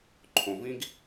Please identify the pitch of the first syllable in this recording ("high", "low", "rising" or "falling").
low